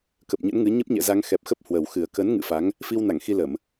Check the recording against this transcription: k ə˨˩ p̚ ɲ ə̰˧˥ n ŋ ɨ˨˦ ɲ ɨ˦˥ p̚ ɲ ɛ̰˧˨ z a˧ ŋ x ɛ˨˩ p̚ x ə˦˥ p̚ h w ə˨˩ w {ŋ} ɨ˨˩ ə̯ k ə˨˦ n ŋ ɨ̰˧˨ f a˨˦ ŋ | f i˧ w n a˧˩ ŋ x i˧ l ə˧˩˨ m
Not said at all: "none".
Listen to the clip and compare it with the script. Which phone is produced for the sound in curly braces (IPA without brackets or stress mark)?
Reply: x